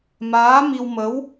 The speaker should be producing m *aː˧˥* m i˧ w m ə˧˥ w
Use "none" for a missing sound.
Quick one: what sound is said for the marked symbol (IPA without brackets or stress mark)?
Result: aː˧˥